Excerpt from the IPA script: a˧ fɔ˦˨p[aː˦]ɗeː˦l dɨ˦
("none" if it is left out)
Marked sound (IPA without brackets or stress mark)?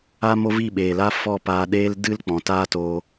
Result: aː˧